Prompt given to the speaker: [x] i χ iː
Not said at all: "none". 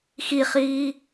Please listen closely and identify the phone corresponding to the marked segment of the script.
x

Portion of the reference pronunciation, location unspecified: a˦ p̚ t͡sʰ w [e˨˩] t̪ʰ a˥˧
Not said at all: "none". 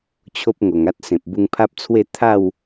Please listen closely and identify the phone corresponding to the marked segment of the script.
e˥˧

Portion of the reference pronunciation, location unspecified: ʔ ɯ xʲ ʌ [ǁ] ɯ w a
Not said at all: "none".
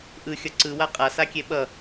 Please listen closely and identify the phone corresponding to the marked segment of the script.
ǀ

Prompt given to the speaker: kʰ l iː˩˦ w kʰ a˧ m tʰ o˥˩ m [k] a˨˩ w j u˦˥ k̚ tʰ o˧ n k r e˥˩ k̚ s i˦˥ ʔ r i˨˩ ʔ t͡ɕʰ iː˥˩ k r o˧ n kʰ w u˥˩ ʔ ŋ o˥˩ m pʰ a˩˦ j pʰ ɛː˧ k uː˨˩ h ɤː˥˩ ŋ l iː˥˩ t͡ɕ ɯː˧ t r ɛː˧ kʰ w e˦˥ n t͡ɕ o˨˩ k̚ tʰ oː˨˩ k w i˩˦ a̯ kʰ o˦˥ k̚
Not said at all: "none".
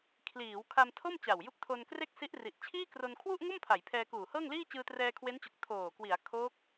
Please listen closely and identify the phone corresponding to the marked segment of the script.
t͡ɕ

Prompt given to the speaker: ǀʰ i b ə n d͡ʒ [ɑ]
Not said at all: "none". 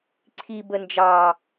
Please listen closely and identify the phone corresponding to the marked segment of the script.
ɑ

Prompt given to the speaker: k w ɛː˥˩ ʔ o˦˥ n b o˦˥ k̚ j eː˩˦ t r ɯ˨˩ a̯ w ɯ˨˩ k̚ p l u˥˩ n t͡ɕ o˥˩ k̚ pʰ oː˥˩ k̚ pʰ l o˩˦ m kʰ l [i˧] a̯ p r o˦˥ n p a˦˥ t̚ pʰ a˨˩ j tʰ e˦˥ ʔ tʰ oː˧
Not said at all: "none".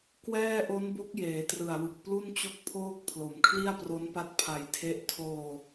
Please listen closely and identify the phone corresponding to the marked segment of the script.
i˥˩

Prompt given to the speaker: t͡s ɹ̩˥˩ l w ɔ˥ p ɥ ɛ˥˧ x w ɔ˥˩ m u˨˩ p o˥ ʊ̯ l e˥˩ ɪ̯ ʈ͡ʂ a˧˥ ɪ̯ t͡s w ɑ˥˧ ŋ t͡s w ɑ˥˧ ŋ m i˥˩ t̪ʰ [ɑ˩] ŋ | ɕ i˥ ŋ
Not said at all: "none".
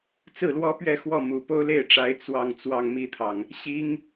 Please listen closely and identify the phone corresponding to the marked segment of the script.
ɑ˩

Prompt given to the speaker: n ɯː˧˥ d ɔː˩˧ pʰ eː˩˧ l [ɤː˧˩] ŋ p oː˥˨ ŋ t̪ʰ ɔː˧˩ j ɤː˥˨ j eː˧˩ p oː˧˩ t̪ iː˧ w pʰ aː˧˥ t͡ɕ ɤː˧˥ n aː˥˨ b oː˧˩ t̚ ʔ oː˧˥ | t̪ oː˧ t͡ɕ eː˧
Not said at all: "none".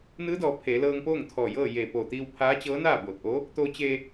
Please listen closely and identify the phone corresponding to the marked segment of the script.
ɤː˧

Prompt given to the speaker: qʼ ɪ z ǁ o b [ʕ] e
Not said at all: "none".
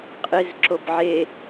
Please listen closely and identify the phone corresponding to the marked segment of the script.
ʕ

